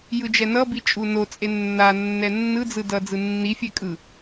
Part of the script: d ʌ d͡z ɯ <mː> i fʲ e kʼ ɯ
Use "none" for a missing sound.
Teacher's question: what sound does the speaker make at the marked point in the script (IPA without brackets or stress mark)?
nː